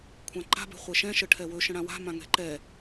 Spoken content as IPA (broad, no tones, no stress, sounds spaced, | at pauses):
kʷʰ ã ǃ a̤ b ɛ̤ χʷ ɛ ʃ ɛ̃ ʃ ə ʈʰ ɛ w ɵ ʃ ə̃ ɽ ã w a̤ m ã ŋ ɛ̤ ǃ ɛ